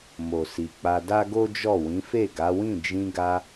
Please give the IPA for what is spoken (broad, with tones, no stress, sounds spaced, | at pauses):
m o˨ s i˨ k͡p a˧ d a˦ ɡ o˦ d͡ʒ ɔ˦˨ w ĩ˨˦ f e˦˨ ɡ a˨˦ w ĩ˦˨ d͡ʒ ĩ˧ ɡ a˧